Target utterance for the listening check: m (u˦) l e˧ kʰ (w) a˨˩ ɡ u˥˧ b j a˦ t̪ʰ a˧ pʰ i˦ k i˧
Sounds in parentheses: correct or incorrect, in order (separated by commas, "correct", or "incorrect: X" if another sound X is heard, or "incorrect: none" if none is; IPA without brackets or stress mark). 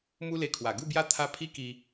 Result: correct, correct